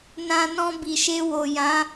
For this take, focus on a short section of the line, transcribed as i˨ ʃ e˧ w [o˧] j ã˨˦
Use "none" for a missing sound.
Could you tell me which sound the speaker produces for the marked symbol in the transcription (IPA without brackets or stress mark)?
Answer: o˨